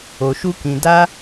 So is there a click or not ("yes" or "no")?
no